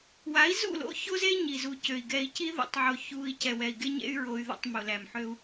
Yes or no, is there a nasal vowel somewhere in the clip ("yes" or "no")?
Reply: no